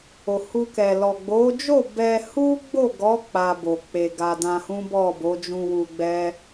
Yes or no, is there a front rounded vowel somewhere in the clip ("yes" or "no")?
no